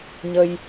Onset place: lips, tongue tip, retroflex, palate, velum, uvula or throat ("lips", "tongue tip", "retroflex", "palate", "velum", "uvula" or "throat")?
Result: palate